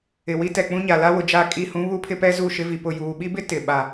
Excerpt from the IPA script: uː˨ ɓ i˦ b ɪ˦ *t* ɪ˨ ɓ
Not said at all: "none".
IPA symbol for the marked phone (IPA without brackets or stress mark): t